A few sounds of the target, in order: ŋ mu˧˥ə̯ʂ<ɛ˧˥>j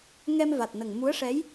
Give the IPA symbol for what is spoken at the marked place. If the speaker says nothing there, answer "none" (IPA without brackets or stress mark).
ɛ˧˥